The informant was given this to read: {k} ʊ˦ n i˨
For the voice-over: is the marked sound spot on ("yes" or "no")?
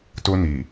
no